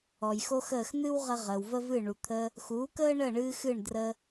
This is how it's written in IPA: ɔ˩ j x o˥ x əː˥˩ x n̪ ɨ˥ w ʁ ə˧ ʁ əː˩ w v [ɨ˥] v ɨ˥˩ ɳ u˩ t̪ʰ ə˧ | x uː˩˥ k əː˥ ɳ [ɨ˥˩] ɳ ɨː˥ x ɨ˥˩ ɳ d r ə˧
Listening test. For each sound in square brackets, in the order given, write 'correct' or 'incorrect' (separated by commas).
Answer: incorrect, incorrect